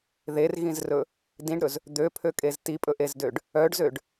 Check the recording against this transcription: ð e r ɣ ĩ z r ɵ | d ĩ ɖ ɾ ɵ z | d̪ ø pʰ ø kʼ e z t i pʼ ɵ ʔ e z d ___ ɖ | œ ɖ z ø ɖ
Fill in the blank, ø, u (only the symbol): ø